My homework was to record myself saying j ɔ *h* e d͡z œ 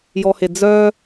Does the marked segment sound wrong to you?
no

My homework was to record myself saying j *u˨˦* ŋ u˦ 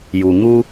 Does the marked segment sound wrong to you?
yes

